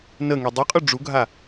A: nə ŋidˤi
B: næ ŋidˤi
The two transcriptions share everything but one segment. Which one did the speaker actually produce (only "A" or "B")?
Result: A